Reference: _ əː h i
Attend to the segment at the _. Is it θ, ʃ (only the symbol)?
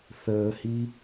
θ